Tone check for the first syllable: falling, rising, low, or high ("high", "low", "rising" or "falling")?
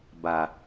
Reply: low